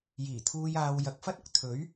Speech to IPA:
jiː˨˩t̪ʰuː˧jaː˧w jɐ˨k̚ fɐ˥t̚ ʊ˨˥k̚ t̪ʰɵ˨˥ɥ

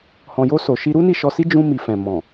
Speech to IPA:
hɔ̃˨jo˧so˨ ʃi˧ɾu˦ni˦˨ ʃɔ˧si˦ d͡ʒũ˧ mi˨fɛ̃˨ mɔ̃˨

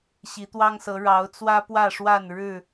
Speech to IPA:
ɕi˨˦t̪wɑ˦ŋsɤ˨˦ ɻɑ˨˦ʊ̯t͡swä˦pwä˥˨ʂwa˥˨n ɻɻ̩˥˨

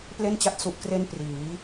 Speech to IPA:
ple˥˩nt͡ɕa˦˥t̚ su˨˩ʔkre˧n priː˩˦

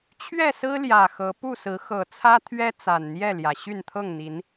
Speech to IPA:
t͡ɕʰɥɛ˥˨sɹ̩˦ ljä˨˩xɤ˨˦ pu˥˨sɹ̩˨˦ xɤ˨˩t͡sʰä˦t̪ʰɥɛ˦ t͡sa˨˩nn̪jɛ˥˨ljä˩ ɕy˥˨nt̪ʰɤ˥˨ŋn̪i˨˦n

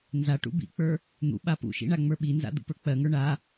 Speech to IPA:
nza ʈṵbḭk͡pə˞ | n̪ṵ ɓapṵʃḭ ɳaŋ͡mə˞ɓinza̰ d̪ṵpə˞k͡pɜŋə˞ ɳa

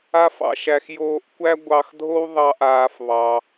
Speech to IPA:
a˦fɑ̰˧ʃæ˧x joː˧ʔkʷæ˦ ɡʷɑ˧xdʱo˦w ðˤɑ˦ʔaː˧f βɑ˧

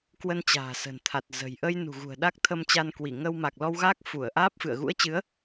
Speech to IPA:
kwə˧n t͡ɕa̤ː˨˩sə̤˨˩nt̪ʰa˨˩t̚ zə̤˨˩j ʔə˧j nṳ˨˩ɣṳ˨˩ə̯ ɗa˦˥k̚t̪ʰə˧mt͡ɕa˧n kwi˧˩ŋə˧w ma˨˩k̚lɔ˧wɣaː˦˥k̚ fu˧˩ə̯ʔaː˦˥p̚ fɨ̰˧˨ə̯ ɣṵ˧˥ə̯t͡ɕɨ˨˦ə̯

